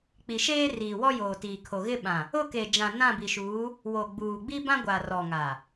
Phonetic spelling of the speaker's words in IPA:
k͡p i˨ ʃ eː˦ r iː˨ w ɔ˦ j oː˨ t iː˨ kʰ o˨ ɣ ɪ˦ ɓ ã˨ | ʊ˦˨ k e˨ d͡ʒ ã˨ n ã˦˨ b i˨ ʃ uː˨˦ | w o˨ ɡ͡b uː˨ ɡ͡b i˦ b ã˦ ɡʷ a˨ r ɔ˨ ŋ a˨

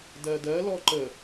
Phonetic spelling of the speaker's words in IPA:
d ɜ d ɜ l ɔ ǃ ə

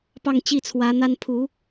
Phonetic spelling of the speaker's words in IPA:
p ɑ˥˨ ŋ t͡ɕ i˥˨ t͡sʰ w ä˨˦ n̪ a˦ n pʰ u˨˦

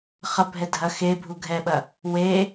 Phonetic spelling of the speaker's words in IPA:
χ ɐ bʱ ɛ dʱ ɐ x e bʱ u ɡʱ ɛ ɓ ɐ | w e

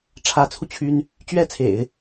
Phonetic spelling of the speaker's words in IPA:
ʈ͡ʂʰ ä˧˥ t͡sʰ u˧ t͡ɕʰ y˥ n | t͡ɕ ɥ ɛ˥ t͡sʰ ḛ˨˩˦ ɪ̯

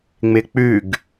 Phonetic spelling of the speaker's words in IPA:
ŋ͡m ɪ k͡p ʉ ɡ

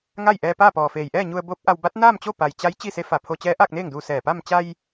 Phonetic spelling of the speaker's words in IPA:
ŋ a˥˨ j ʔ ɛː˧ p aː˥˨ p ɔː˩ f eː˩ j ʔ ɛː˥˨ ɲ u˧ ə̯ b oː˧˥ p̚ ʔ a˧ w b a˧˥ t̚ n aː˥˨ m t͡ɕ o˥˨ p a˩ j t͡ɕ a˧˥ j t͡ɕ i˥˨ s e˧˥ f a˧˩ pʰ o˧ t͡ɕ ɛː˧˥ ʔ aː˥˨ k̚ n eː˥˨ ŋ d uː˧ s ɛː˧˩ p a˥˨ m t͡ɕ a˧ j

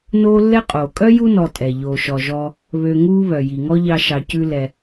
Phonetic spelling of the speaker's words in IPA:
n oː˦ lː ɛ˦ qʼ oː˩ kʼ œ˥ j u˥ n ɔ˨ tʼ ɛ˩ ʎ oː˩ ʃ ɔ˩ ʒ ɔː˨ | β ø˨ ŋ uː˦ β œ˩ j i˩ ŋ ɔ˦ ʎ ɑ˨ ʃ ɑ˩ c ʉ˨ l ɛ˩

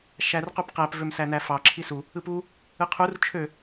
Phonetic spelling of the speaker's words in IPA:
ʃ æ r q u p q æ p v ø m s æ n æ f ɑ ǁʰ i s u | ɯ p u | ɯ qʰ u r t͡ʃʰ ø

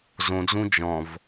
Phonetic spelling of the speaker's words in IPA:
z õ d͡z ũ d͡ʒ ɔ̃ v

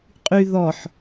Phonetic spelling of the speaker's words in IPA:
qʼ y ð ɔ ħ

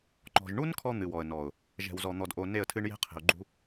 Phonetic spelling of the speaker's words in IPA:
ŋ͡ǃ ɔ̤˨ ʒ ɳ u˦ n kʰ ɔ˦ n̪ ɨ˨ w ɔ˨ ə̯ n ɔ˨ ʊ̯ | ʒ ɛ̤˨ w z ɔ˨ n̪ ɔ˨ d ʔ o˨ n e˦˨ ə̯ tʰ ɨ˦ ɳ j e̤˦ qʰ e̤˨ ʊ̯ ɡ͡ǃ ṳ˦

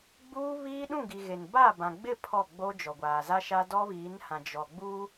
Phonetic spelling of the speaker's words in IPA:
ɡ͡b uː˦ β iː˦ ɗ ũ˦˨ ɡ i˨ ɣ e˨ n b a˦˨ b ã˨ ɡ͡b ɪ˦˨ pʰ ɔ˦˨ ɡ͡b o˦ d͡ʒ ɔ˨ ɡʷ aː˨ z a˦ ʃ a˦ d ɔ˦ β iː˨˦ n h ã˨ d͡ʒ ɔ˨ ɡ͡b u˦

